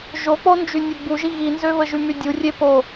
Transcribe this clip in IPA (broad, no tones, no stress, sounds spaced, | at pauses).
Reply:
ʒ o k͡p o n d͡ʒ y nʲ e ɡ͡b u ʒ i ɣ i n z ø β ə ʒ y m y dʲ u rʲ e p o